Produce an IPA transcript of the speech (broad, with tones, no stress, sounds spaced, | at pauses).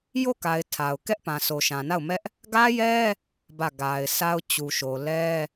j o˦˨ k a˨ ɪ̯ tʰ a˨ ʊ̯ k ɛ˦ ʔ p ã˨ sʰ o˨ ʃ ã˨ n a˦˨ ʊ̯ m ɛ˦ ʔ | ɡ ä˦ j ɛ˦ | b ä˦˨ ɡ a˨ ɪ̯ sʰ a˦ ʊ̯ t͡ɕ u˨ ʃ o˨ l ɛ˦